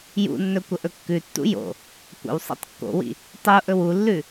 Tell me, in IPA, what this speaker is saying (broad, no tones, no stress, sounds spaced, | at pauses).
j ṵ nː ɵ kʷ ə ʔ ɵ kː ʉ tː ṵ j o̰ | kʷ ə̰ w sˤ ḭ tˤ kː o̰ w ḭ | tˤ u ʔ ɵ w u lː ʉ